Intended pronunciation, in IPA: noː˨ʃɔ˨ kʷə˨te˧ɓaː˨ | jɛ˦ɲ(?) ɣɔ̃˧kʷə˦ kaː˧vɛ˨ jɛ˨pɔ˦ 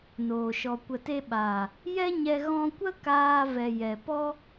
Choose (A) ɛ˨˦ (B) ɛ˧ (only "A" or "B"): B